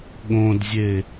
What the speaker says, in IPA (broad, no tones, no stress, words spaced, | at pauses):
ɠõdzʲe